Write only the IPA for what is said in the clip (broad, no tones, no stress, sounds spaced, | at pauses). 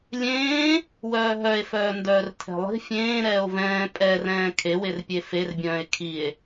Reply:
lʲ ẽː | w œː ɦ œ e̯ f œː n d œː r tʰ ɛ̤ lˠ i̤ fʲ ẽː ɾ ɛː o̯ v ɛ̃ː pʼ ɛ r ɛ̃ː kʰ e w e r pʲ e f e r bʲ œ̃ː e̯ kʰ i e̯